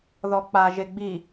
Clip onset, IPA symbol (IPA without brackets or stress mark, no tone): ð